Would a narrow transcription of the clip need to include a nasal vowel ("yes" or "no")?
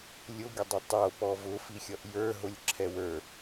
no